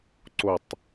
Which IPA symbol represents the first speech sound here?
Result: ǀ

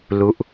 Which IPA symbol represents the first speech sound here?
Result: l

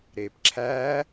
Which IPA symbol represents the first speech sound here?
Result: ɾ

